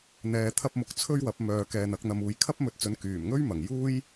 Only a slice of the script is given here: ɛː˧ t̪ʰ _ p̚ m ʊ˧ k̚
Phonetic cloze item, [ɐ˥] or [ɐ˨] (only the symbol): ɐ˥